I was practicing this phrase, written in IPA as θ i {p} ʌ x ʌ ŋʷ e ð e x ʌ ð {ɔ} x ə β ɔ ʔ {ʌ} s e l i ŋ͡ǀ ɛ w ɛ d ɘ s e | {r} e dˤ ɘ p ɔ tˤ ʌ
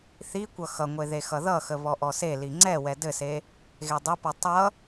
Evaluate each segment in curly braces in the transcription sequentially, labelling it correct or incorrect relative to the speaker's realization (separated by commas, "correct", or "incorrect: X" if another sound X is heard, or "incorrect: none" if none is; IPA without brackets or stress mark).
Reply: incorrect: kʷ, incorrect: ʌ, incorrect: ɔ, incorrect: ɣ